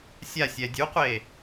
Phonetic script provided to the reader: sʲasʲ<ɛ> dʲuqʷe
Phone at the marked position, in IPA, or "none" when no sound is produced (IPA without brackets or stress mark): ɛ